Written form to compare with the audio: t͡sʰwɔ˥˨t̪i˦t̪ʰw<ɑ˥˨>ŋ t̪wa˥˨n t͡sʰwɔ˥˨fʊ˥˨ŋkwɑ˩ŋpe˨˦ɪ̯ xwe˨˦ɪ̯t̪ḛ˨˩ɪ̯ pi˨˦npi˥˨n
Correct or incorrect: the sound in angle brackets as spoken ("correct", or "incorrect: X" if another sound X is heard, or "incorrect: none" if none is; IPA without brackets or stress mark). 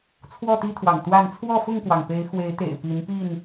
incorrect: ɑ̰˨˩